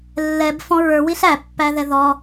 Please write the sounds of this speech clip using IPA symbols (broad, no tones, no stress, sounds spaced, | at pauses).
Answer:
lː ɛ b f ɔ̃ ɹ ə˞ w i ɬ æ pː æ ð ɛ ð ɔ